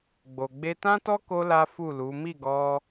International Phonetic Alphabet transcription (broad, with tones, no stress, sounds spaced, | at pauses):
ɡ͡b o˨ ɡ͡b e˧ t ã˦ t ɔ˦ k o˧ l a˦ f u˦˨ l u˨˦ m i˦˨ ɡ ɔ˧